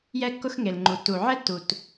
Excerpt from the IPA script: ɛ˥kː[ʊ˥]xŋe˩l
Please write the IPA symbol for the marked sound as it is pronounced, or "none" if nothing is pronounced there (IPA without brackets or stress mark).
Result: ʊ˥